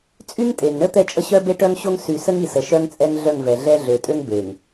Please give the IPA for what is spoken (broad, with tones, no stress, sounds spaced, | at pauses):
t͡sʼ y˦ ŋ tʼ e˨ ŋ ɳ ə˦ t̪ ɛ˦˨ t͡ʃʼ ə˦ ɕ œ˦ b e˦ ʈ œ˦ ŋ ɕ o˦ ŋ s y˨ s ə˦ ŋ i˨ s ə˨ ʃ œ˦ ŋ t͡sʼ ɛ˦ ŋ ɮ œ˦˨ ŋ v ɛ˨ ɮ ɛ˦ ɮ ø˨ tʼ ø˦ ŋ b e˨ ŋ